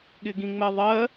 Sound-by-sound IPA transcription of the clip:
ɠ ɪ ɡ ĩ ŋ͡m ɛ ðˤ ɜ

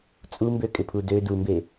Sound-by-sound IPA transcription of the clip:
t͡sʼ u m b ø kʼ ɪ pʰ u d ø d u m b e

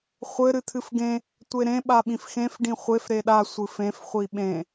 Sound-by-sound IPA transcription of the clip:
χʷ ɘ ɾ ɨ t̪ʰ ɨ f ɡ ẽ | tʷ e ɾ ẽ ɓ a ɓ ĩ f x ẽ f ɖ ĩ χʷ e f ɾ e ɗ a sʷ ɨ f ẽ f χʷ i ɓ ẽ

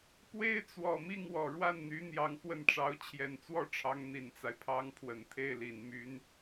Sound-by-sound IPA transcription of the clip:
p w e˥ ɪ̯ t͡s w ɔ˨˩ m i˥˩ ŋ w ɔ˨˩ ɻ w a˥˩ n n̪ y˧˥ n̪ j ɑ˧˥ ŋ x w ə˥˩ n ʈ͡ʂ ɑ˧˥ ʊ̯ t͡ɕʰ j ɛ˨˩ n t͡s w ɔ˥˩ ʈ͡ʂʰ ɑ˧˥ ŋ n̪ i˨˩ n t͡s a˦ ɪ̯ pʰ ɑ˥ ŋ pʰ w ə˨˩ n t̪ʰ e˥˩ ɪ̯ l i˨˩ n m y˥ n

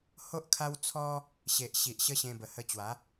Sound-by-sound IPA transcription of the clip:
h o˦ ʔ kʰ a˦ w t͡sʰ ɔ˦ | ɕ e˨ ʔ ɕ i˨ ʔ ɕ ə˦ ɕ ẽ˧ b ə˨˩ h ə˧ t͡ɕ w a˨˦

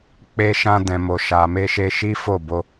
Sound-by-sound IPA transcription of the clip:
k͡p e˧ ʃ ã˧ d ɛ̃˨ m o˨ ʃ a˨ m e˧ ʃ e˧ ʃ i˦ f o˦˨ b o˧

